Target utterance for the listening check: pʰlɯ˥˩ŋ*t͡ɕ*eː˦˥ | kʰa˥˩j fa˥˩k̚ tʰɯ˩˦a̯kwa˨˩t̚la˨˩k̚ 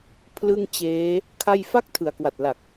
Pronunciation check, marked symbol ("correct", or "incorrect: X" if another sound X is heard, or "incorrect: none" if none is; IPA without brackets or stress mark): correct